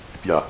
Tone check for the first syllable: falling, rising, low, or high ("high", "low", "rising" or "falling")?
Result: low